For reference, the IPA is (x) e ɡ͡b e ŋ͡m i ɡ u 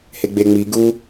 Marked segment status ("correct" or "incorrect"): incorrect